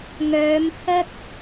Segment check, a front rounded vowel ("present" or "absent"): present